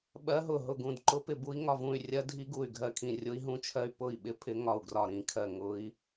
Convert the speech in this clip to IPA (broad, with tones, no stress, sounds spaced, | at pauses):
ɓ ɜ˦˥ ɦ ʊ˥˩ ɦ ʊ˥˩ ɡ ũ˥˩ d ǃ ʊ˦˥ p ɪ˥˩ b u˦˥ i̯ ŋ ɒ˥˩ v ũ˥˩ y̯ rʲ ɜ˦˥ dʱ i˦˥ ɡ u˥˩ y̯ ɡʱ ɜ˥˩ kʰ ĩ˥˩ rʲ ʊ˦˥ i̯ ɦ ũ˦˥ t͡ʃʰ ɜ˦˥ y̯ p ʊ˥˩ i̯ ɓ ɪ˦˥ pʰ ɪ˦˥ ŋ ɒ˥˩ u̯ ɡ r ɒ˥˩ ɾ ĩ˦˥ kʰ ɜ˥˩ ŋ ʊ˦˥ i̯